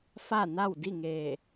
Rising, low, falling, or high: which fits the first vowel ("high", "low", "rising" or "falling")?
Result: falling